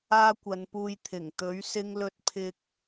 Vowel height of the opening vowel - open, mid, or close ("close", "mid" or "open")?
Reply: open